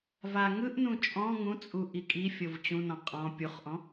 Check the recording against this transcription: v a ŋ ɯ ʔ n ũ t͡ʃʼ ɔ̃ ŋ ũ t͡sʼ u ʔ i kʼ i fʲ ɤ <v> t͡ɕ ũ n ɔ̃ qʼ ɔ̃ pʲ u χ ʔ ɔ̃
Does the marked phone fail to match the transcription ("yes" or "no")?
no